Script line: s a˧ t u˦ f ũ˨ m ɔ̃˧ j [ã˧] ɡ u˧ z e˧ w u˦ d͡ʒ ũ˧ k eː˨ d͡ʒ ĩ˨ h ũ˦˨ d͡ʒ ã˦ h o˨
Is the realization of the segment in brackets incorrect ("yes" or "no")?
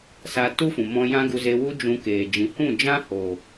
yes